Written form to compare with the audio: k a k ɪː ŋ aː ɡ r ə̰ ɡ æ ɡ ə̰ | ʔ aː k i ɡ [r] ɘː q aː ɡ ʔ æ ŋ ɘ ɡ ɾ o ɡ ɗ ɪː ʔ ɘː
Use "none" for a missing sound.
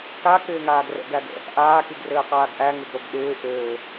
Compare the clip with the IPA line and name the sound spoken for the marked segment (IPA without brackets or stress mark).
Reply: r